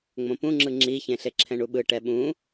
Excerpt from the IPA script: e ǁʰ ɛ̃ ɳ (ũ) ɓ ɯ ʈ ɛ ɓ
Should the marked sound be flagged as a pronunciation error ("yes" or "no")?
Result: yes